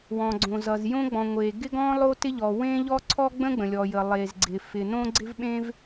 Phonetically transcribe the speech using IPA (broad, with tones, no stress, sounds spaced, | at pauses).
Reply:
w ɔ̃˩ ɡ͡ǀ õ˩ z ʌ˩ z j õ˥ ɡ͡b ɔ̃˩ ŋʷ e˩ ɡ ɪ˥ ɡ ɔ̃˥ lˠ o˥ t ɪ˥ ʎ ɔ˩ w ẽ˥ ʎ ɔ˥ ǀʰ ɔ˥ ɡ͡b ə̃˥ ɡ͡b ə̃˩ lʲ ɔ˩ j ə˩ lˠ e˩ z ɡ͡ǀ ɪ˩ f ɪ˩ n õ˥ ɡ͡ǀ ɪ˥ v ɓ ẽ˥ v